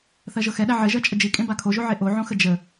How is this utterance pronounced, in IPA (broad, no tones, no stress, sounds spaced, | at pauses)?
θ ɜ ʒ ɤ x ɛ ɗ æ ʕ ɘ ʒ ɜ t͡ʃʼ ə d͡ʒ i kʼ ẽ b a kʰ o ʒ o ʕ e ʔ o ʕ õ x ə d͡ʒ ə